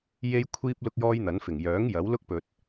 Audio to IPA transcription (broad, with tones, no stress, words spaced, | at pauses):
je˥jkʷʰiː˥p̚ lʊ˥k̚jɔː˥jn̪ɐ˨˥n fɪ˨˩ŋjœː˨˥ŋ jɐ˨˥w lʊ˥k̚pɵ˨t̚